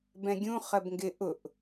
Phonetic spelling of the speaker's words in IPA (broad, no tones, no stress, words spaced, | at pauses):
bɛ̃ɡʲũ χɜbŋɡɪ ʔʊʔ